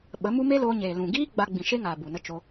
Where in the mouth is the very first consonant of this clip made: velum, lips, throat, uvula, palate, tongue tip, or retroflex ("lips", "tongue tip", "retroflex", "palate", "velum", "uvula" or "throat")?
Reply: lips